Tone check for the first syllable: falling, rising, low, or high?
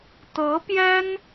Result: rising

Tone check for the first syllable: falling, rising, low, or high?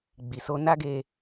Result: low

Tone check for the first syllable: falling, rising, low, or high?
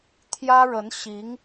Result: high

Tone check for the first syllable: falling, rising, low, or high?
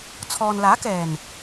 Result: low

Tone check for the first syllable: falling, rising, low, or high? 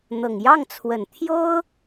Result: low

